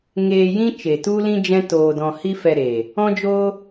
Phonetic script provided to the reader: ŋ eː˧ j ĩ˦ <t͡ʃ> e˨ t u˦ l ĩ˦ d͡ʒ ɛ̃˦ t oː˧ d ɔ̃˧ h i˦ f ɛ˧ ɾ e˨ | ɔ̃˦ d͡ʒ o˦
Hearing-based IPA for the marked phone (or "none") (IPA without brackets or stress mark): t͡ʃ